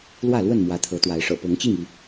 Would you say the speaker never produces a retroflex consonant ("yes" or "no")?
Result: no